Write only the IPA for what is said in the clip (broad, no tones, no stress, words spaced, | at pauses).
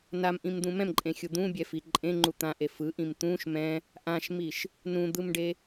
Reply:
namʔĩmd̪ũ mɛ̃mǃʼẽxʲu d̪ũbʲɛfi ǃʼẽŋ͡ǃu t̪ãʔe fɯʔĩm t̪ũʃ mɛ̃ | ʔãʃmiʃ | nũd̪ɯmɖe